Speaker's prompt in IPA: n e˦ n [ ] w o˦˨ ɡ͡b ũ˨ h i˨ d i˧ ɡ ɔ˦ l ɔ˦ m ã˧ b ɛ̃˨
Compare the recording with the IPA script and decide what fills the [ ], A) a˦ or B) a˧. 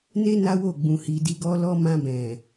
A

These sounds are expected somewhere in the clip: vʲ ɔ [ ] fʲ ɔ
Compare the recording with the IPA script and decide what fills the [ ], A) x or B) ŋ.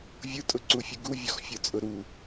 A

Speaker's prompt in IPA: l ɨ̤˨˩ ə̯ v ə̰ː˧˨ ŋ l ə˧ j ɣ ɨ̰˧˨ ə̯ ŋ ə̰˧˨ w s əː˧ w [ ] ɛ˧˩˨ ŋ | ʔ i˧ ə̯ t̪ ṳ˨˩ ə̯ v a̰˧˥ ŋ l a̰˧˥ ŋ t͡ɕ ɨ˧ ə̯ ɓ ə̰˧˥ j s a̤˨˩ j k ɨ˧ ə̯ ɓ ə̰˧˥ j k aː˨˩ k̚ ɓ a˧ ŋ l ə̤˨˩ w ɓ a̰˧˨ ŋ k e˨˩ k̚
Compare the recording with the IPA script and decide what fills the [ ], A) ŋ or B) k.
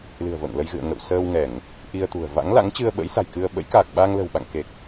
A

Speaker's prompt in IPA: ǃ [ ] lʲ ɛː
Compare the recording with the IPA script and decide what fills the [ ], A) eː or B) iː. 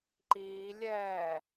B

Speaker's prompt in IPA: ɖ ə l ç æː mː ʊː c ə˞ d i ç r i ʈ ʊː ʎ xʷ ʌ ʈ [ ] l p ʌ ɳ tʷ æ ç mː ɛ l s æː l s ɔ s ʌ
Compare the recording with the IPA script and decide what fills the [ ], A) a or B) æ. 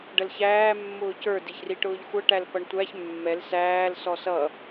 B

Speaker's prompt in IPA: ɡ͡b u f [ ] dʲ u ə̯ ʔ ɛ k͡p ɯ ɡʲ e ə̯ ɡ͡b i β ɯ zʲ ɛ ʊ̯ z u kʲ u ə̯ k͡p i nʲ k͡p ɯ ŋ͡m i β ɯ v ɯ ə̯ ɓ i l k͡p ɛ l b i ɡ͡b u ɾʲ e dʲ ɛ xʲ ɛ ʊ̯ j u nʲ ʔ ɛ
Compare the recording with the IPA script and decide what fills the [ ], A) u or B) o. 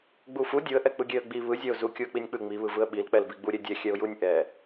A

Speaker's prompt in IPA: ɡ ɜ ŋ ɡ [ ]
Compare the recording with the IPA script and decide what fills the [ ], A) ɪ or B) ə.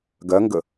B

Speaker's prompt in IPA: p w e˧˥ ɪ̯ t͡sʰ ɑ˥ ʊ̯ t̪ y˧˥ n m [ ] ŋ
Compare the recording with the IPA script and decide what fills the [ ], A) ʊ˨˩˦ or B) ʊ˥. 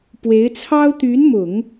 A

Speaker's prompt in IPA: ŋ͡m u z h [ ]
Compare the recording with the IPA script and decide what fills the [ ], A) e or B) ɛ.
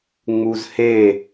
A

